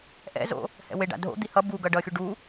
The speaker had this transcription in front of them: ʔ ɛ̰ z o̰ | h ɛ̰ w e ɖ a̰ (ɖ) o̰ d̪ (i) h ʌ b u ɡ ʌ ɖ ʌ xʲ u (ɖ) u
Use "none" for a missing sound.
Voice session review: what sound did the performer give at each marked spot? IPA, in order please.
dʱ, i, ɖ

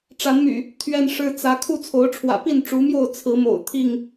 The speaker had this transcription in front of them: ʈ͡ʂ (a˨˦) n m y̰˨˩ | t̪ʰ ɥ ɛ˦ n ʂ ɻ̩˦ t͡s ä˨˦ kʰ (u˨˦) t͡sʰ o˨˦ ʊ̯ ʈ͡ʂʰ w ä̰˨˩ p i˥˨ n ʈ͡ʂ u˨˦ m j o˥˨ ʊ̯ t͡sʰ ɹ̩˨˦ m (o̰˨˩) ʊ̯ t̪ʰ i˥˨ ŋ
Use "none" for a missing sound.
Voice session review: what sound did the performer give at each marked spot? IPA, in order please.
a˨˦, u˥˨, o̰˨˩

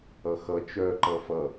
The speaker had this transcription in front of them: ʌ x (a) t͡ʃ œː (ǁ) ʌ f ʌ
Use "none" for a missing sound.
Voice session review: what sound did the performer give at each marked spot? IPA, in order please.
ʌ, ǃ

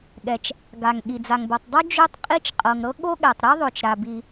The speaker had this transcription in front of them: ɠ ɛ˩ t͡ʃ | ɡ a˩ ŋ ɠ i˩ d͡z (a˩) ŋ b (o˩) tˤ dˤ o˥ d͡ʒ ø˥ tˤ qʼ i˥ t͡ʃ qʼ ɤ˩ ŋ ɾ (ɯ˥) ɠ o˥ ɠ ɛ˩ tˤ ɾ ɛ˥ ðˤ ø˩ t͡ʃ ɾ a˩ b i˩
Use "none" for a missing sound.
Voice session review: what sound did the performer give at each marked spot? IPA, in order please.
a˩, o˩, ɤ˥

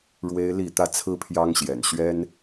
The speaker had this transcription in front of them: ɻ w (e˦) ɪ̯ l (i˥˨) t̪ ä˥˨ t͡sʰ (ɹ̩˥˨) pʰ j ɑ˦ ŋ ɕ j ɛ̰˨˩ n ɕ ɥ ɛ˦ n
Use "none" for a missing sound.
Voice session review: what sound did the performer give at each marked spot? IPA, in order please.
e˦, i˥˨, ɹ̩˦

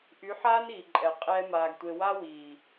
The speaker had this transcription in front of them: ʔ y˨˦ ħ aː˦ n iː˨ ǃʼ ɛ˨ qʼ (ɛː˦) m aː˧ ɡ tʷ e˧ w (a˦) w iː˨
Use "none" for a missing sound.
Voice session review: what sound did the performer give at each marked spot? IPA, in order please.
ɛː˦, a˦

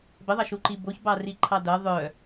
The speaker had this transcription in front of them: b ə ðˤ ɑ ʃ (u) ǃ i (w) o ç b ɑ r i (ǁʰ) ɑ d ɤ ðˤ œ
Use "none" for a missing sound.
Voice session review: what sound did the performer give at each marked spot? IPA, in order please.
u, b, ǃʰ

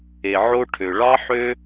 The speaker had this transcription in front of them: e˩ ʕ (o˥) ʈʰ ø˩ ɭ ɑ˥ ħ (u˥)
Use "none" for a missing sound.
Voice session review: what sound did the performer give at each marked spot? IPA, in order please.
o˥, ø˥

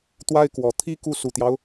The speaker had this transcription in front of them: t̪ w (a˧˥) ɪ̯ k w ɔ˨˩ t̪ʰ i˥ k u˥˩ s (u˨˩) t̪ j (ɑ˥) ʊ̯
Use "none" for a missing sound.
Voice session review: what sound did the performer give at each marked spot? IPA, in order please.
a˥, u˨˩, ɑ˦

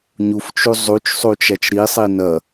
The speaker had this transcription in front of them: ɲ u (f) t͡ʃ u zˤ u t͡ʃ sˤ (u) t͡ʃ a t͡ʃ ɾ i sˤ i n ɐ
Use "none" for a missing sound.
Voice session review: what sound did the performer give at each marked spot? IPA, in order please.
f, u

